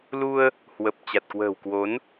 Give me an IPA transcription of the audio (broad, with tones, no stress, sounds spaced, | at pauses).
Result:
l u˧ ə̯ | h w ə˨˩ p̚ t͡ɕ a˨˩ t̚ k w ə̤ː˨˩ w k w o˨˦ n